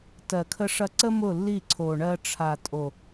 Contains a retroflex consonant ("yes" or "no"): yes